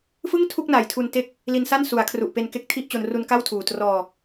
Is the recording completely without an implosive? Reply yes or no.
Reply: yes